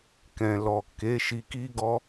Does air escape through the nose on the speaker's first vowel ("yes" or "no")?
yes